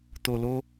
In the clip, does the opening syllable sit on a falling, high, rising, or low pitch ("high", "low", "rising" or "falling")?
low